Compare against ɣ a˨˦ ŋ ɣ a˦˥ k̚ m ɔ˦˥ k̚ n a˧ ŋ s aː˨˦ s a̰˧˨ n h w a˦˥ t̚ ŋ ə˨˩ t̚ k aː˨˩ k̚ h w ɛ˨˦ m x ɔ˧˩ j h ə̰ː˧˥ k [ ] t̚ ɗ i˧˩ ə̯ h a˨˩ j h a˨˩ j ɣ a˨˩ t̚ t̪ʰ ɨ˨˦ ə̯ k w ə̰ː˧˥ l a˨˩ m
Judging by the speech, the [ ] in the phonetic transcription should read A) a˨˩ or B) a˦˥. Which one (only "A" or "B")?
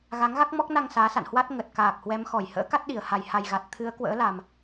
B